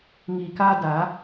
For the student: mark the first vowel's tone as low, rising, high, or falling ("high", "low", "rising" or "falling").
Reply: low